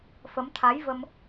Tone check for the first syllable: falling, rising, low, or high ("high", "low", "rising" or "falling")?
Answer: rising